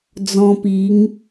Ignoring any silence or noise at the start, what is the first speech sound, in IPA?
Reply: d͡z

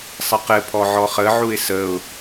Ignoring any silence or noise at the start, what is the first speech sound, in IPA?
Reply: sˤ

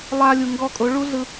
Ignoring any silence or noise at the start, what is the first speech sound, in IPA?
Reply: lˠ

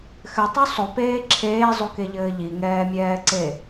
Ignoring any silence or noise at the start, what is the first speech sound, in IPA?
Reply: x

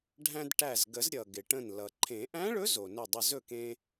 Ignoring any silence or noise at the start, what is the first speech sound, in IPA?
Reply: ɖʱ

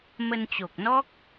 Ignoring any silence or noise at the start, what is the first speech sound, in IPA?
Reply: m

